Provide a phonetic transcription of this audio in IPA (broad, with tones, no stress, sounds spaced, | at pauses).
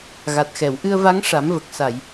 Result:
ɣ a˨˩ t̚ x ɛ˨˩˨ w ʔ ɨ˧ ə̯ v a˧˥ ŋ ʂ a˨˩˦ m v ə˨˩ k̚ s a˨˩˨ j